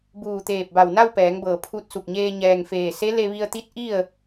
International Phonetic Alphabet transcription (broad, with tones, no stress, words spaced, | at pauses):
buː˧˩t̪eː˧˩p̚ba˧˩w na˥˨wpɛː˩˧ŋbɤː˩ pʰu˧t̚su˧˩k̚ɲeː˧ ɲɛː˩ŋfeː˧˩se˧˥ le˧ʋi˧ə̯t̪i˧˥t̚ ʔi˥˨ə̯